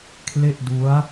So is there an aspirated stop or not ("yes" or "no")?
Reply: yes